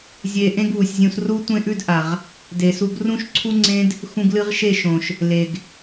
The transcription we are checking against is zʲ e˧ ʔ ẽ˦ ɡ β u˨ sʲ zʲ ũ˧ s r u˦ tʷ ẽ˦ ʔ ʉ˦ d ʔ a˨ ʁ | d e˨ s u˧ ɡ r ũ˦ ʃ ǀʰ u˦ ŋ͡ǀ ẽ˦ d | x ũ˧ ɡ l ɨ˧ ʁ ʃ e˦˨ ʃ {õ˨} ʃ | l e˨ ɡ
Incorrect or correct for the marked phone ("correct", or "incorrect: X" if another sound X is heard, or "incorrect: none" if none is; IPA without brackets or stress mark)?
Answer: correct